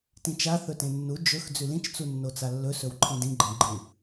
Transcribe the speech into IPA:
t ĩ t͡ʃ a θ ɵ t ẽ nː u d͡ʒ ɵ x d͡z ʉ l ĩ t͡ʃ t͡s u nː o t͡s a lː ɵ s ɵ w ǃʰ ĩ d ĩ ɡ͡ǃ ẽ ɡ͡ǃ ɨ

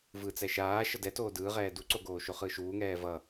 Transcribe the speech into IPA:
v ɯ t͡s ɛ ʃ aː ʃ ʌ d ɛ t oː d ɯː ʁ ɛː d u ǀ o ɡ oː ʃ o χ ɯ ʃ uː ŋ ɛː v ʌ

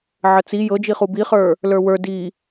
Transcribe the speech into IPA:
ʕ ə t͡s i j ɤ d͡ʒ i χ u b i χ ə˞ | l ə˞ w ə˞ d i

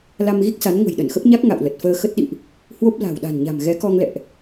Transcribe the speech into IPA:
l a˧ m ɣ i˦˥ k̚ s a˨˦ n ŋ ə̤˨˩ j ɗ ə˧˩ n x ə˦˥ p̚ ɲ a˦˥ k̚ ŋ a̰˧˨ w l ə˨˩ t̚ f əː˧ x ə˦˥ t̚ ɗ ḭ˧˨ ʔ | h w o˦˥ p̚ l a̤˨˩ w ɗ a̤˨˩ n ɲ a̤˨˩ m ɣ ɛ˨˦ k ɔ˧ ŋ l ɛ̰˧˨ ʔ

